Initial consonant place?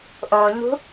glottal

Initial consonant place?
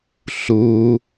alveolar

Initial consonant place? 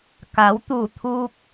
velar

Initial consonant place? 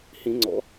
glottal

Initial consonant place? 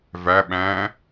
labial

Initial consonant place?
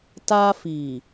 alveolar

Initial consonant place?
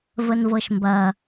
labial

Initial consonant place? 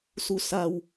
alveolar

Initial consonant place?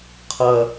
uvular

